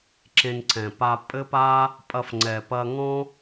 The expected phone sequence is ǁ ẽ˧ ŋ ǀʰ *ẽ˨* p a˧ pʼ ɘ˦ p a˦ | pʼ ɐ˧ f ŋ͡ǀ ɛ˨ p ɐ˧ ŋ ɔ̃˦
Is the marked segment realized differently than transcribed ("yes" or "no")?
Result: yes